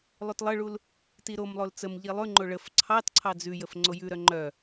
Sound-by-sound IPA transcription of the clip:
lˠ ʉ t lˠ ə ɭ u l | t i ɾ o m lˠ o l t͡s ə m ʎ i lˠ ʉ ŋ͡ǃ o ɭ ə f ǀʰ ɑ t ǀʰ ɑ d͡z ʉ j ə f ŋ͡ǀ o j ʉ ɾ œ ŋ͡ǃ œ

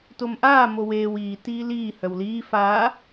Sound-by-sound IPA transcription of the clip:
t o m ʔ aː m o w eː w iː t iː l iː h œ w l iː f aː

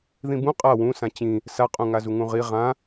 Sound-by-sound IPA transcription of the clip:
ð ĩ b ũ qʼ a w ũ s ã t͡ɕ ĩ | s a qʼ ũ ŋ a z u ŋ ũ ʁ i ʁ ã

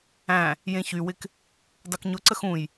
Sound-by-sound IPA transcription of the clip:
æ̃ | j ẽ ç y w ɪ k | dˤ u k ɲ ʊ ǀ ə x ũ j

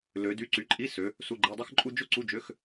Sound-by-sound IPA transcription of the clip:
l ø˨˦ d y˧˥˧ ǀ y˨˦ ǃʼ i˧˥˧ s ø˨˦ | s u˧˥˧ ɡ͡ǃ e˧˥˧ dˤ ɯ˥ x ǃʼ u˥ d͡ʒ o˥ ǀ u˧˥˧ d͡ʒ ø˧˥˧ x

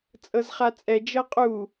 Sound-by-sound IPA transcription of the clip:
t͡sʼ ɤ z χ a t͡sʼ ɛ d͡ʒ ɤ qʼ u

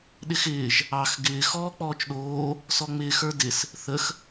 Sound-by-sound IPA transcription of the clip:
ɗ ɪ x ɪː ʒ | ɑ x ɡ ɪː x ɔː k͡p ɔː t͡ʃ ɗ oː | s ɔ ŋ͡m ɪː x ə˞ d ɪ s | θ ə x

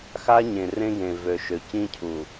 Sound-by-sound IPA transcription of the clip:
x a˦ ɲ ẽ˨ r ẽ˦ ɡ ẽ˨ v ø˨ ʃ ø˨ c ĩ˦ cʰ u˨

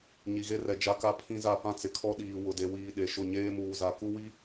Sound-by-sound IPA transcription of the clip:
ɲ i˨ ɣ e˦ r ɛ˨ d͡ʒ a˦ k a˦ pʰ ĩ˦ z a˦˨ p ã˦ t͡s ɪ˨ kʰ ɔ˦ ɗ iː˨ w ʊ˨ d e˨ w iː˨ ɗ e˨ ʃ ʊ˦˨ ɲ eː˦ m uː˨ z a˨ k u˦ w i˦

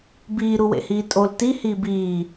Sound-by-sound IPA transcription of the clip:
b iː ɾ u w ḛ h iː tʼ o l t i h iː b iː

